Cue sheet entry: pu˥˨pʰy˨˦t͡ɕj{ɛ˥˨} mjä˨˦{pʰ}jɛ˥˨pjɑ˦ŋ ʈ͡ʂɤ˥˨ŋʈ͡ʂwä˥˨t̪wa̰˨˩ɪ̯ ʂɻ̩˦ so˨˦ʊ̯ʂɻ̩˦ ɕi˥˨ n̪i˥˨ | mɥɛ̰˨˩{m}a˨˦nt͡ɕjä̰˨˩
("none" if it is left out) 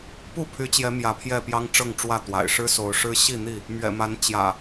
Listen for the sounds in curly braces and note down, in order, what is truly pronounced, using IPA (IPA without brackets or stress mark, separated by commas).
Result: ɛ˨˦, pʰ, m